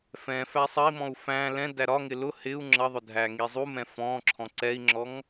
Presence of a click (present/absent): present